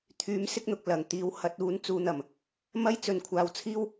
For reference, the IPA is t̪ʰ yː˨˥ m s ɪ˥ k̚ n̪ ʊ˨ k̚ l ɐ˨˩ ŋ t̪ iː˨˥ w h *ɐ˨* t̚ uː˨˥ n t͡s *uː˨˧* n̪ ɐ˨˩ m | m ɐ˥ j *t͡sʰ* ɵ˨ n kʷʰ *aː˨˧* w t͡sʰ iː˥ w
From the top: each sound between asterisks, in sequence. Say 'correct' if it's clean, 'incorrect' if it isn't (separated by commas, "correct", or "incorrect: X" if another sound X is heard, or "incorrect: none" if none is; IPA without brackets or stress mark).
incorrect: ɐ˨˥, correct, incorrect: t͡s, correct